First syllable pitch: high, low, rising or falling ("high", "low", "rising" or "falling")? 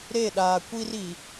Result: falling